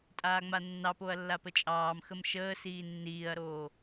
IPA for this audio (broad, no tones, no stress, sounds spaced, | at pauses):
tʼ aː ŋ͡m a nː ɑ p o ɐ̯ lː a p ə t͡ʃʼ ɑː m x ə m ʃ əː s iː nː iː ɐ̯ ɾ oː